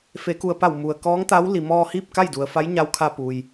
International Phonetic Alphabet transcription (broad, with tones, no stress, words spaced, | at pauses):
fe˩˧ku˩ə̯pa˧˩w mu˩ə̯ kɔː˧˥ŋt̪a˧˥w li˩mɔː˧ hiː˥˨p̚ka˥˨jdu˩ə̯fa˧˥j ɲa˧˥wkʰa˧ pu˩j